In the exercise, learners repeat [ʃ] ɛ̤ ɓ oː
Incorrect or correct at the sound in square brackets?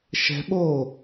correct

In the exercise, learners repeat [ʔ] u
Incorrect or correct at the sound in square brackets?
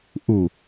correct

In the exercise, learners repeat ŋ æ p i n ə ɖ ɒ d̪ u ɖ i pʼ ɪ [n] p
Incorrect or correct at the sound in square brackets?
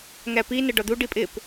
incorrect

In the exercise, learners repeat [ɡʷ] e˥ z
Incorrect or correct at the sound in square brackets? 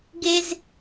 incorrect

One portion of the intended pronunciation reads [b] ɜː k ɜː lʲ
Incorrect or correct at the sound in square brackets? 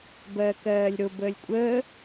correct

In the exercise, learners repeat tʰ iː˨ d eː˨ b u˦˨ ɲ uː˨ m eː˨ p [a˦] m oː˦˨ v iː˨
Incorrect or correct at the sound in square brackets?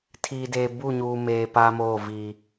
correct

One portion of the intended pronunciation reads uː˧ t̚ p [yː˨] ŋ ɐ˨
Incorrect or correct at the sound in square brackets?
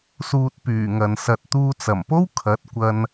incorrect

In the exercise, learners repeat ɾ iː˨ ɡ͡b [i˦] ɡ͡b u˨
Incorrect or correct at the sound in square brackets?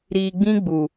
incorrect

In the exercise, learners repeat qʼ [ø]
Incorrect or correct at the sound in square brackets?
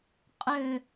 correct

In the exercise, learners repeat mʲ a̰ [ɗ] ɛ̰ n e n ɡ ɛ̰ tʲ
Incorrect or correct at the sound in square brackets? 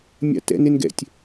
incorrect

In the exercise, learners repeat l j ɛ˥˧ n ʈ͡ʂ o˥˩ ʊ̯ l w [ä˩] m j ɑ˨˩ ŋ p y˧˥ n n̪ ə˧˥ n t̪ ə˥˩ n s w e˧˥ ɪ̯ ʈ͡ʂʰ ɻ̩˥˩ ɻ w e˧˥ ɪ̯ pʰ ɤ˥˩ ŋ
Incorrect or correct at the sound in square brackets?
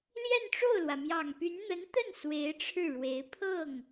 correct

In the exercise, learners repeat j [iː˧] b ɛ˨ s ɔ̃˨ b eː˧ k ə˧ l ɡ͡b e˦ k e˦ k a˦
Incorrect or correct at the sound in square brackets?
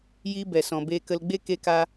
incorrect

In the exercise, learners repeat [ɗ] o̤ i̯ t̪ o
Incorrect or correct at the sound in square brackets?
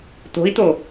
incorrect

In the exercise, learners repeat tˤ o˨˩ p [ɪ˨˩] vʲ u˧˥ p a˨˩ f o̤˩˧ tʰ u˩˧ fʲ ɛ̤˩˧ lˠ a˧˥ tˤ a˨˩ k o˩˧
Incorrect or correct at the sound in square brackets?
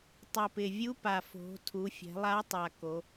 correct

